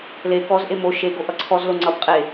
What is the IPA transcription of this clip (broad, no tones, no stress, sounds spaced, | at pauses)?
l e k ɔ z ʔ e m o ʃ e ɡ o ʔ ʌ ǀʰ ɔ z l o ŋ͡ǀ ʌ b qʼ e